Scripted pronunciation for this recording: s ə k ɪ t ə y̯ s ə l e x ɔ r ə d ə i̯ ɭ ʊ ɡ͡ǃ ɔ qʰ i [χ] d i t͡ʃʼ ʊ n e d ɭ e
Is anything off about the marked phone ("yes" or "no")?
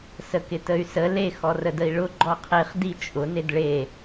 no